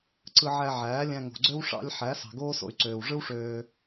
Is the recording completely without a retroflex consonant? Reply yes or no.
no